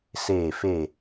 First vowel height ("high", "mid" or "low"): mid